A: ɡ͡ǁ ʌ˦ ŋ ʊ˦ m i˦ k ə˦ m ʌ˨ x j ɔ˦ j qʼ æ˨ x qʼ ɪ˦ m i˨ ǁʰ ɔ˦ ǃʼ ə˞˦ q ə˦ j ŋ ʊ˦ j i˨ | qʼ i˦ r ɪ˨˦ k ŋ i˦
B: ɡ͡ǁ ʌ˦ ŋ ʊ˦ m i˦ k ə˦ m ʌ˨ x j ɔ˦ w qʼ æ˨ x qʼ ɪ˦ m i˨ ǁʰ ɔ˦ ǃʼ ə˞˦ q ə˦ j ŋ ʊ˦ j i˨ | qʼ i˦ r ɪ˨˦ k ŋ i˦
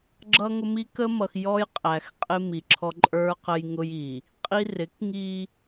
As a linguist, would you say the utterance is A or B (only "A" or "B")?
A